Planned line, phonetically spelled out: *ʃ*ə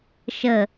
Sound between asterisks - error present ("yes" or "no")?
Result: no